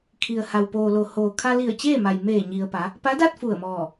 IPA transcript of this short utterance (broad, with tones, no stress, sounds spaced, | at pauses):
kʰ i˩ ə̯ h a˩ w p oː˩ l o˩ h oː˩ kʰ a˧ l i˧˩ ə̯ t͡ɕ eː˥˨ m a˩ j m eː˧˩ ɲ i˩ ə̯ p a˩˧ | p a˧˥ d a˥˨ t̚ f u˧˩ ə̯ m ɔː˧˩